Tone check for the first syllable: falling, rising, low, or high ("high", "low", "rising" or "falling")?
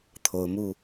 rising